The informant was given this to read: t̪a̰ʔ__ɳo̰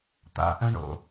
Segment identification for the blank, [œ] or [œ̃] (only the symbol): œ̃